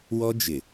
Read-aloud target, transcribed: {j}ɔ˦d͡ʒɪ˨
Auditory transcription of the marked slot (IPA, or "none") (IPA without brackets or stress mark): w